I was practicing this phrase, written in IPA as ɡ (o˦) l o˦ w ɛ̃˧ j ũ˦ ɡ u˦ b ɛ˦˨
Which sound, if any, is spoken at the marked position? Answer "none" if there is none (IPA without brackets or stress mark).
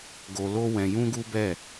o˧